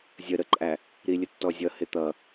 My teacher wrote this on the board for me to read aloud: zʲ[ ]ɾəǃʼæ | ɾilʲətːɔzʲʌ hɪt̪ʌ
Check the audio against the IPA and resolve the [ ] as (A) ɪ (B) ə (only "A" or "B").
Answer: B